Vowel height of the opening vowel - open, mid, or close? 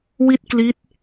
close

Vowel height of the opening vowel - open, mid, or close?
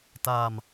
open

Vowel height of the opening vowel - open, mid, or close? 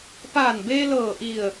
open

